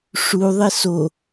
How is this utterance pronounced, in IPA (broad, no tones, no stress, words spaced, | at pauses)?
ʂu ðˤeso